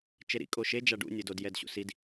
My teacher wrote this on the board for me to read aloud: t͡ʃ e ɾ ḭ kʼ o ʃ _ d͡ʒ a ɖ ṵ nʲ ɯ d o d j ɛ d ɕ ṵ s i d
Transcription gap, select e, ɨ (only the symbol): e